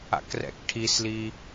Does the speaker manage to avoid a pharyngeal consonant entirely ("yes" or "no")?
yes